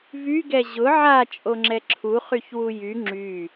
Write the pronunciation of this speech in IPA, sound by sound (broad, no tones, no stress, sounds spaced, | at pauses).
v y ɡ ɛ ʑ ʊ ʕ a t͡ʃʼ o ŋ͡ǁ ɛ ǁʰ u χ y ç w u j y ŋ͡ǁ y